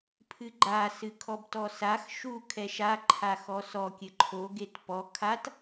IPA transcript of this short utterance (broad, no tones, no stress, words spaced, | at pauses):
pʰɨɡ͡ǃa sɨkʰɔbtɔsax ʃu kʰɛʃa ǃʰaxɔsɔ kʲɘǃʰo ɡetpɔ kʰat